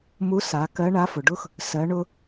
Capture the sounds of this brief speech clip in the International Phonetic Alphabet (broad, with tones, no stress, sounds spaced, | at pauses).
m u˧˥ s a˩˧ k ɜ˧˥ ɳ a˧˥ f ʊ˩ ɖ ʊ˥ x | s ɜ˩˧ ɳ ʊ˧